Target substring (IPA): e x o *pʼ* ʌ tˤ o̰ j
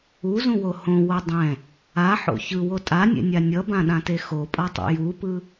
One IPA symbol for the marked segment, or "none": pʼ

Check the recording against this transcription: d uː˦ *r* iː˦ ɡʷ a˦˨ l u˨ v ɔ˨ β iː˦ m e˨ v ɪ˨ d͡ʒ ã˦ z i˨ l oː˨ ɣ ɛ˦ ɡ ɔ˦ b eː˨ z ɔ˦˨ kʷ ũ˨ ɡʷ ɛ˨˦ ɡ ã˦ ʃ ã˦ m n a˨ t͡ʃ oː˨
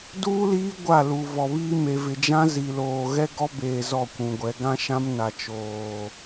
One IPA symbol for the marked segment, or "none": l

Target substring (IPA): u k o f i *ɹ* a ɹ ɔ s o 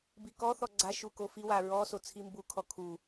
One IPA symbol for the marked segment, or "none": w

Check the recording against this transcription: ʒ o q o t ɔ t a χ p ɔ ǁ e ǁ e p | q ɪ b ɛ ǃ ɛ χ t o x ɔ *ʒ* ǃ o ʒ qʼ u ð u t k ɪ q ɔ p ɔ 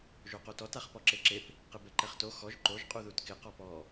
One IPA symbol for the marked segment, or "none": ʒ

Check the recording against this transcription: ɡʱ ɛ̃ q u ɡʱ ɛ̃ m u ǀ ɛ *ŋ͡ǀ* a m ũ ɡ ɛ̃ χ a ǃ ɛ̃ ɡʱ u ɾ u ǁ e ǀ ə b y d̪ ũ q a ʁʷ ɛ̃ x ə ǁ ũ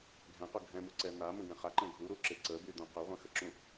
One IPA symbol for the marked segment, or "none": n̪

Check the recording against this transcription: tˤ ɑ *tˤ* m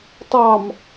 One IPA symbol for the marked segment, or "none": none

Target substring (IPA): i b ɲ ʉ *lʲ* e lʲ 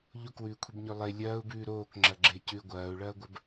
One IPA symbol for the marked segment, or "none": lˠ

